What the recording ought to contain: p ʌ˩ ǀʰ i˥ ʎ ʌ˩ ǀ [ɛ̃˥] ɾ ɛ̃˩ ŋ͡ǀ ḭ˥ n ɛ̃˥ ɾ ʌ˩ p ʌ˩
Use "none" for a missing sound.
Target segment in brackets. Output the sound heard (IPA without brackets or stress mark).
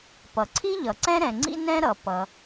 ɛ̃˥